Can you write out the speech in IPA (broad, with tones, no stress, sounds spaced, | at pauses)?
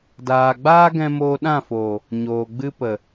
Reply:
d aː˨ ɡ͡b aː˦ ɡ ɛ̃˧ m oː˧ ɗ ã˦˨ f oː˨ | ɲ oː˨ ɡ͡b ɨ˦ p ə˨